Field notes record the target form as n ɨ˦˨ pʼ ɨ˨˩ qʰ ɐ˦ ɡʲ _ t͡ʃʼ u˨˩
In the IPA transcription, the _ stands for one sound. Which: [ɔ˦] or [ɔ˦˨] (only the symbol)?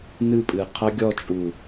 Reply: ɔ˦˨